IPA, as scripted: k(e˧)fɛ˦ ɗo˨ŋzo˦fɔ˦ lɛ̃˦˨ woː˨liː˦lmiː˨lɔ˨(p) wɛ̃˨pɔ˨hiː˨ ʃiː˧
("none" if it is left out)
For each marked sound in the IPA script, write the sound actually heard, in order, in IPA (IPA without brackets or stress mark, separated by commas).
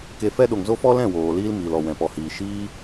e˧, none